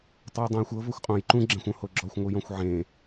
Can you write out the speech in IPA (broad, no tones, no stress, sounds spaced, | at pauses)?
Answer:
tˤ u j dˤ õ j xʷ ɤ v ɤ xʷ qʼ õ j ǃ ũ ɡ͡ǁ ɛ̃ xʷ õ h o ɡ͡ǁ ɔ xʷ ŋʷ ɯ j ɔ̃ xʷ ʕ ẽ